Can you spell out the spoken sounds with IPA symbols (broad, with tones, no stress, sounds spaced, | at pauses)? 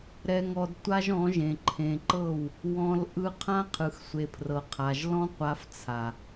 ɾ ɛ˧ ŋ ɔ˧ d tʷ a˦ ʒ ɔ̃˨˦ ʒ ẽ˨ ǃʰ ẽ˨ ǃ ɤ˦˨ w | w ɔ̃˧ l ʔ ɯ˦ qʰ ã˦ qʰ ɯ˨ x sʷ e˨ pʰ r ɤ˨ qʰ a˨ ʒ l ɔ̃˦ qʷ a˧ f t͡sʰ a˨